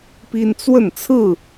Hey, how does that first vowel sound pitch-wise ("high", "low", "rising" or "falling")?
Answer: high